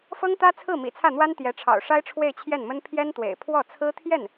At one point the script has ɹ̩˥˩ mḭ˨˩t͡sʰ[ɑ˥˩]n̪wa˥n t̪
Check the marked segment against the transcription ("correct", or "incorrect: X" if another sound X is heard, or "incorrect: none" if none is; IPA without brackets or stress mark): incorrect: ä˥˩